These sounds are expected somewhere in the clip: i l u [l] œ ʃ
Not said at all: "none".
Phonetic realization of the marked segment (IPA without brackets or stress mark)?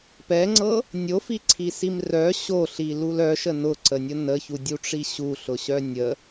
l